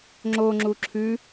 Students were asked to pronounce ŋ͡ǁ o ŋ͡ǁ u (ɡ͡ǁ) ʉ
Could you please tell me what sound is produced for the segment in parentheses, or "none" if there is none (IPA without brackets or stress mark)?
ǁʰ